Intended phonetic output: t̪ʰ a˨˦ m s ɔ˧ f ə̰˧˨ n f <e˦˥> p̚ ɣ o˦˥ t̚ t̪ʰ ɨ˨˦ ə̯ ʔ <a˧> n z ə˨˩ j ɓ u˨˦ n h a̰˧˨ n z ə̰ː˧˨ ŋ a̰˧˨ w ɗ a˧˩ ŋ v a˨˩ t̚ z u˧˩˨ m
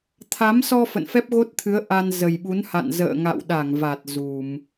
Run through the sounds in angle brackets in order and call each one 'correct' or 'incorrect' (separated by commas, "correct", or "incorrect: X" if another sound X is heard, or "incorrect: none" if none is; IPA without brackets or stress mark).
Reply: incorrect: ɛ˦˥, correct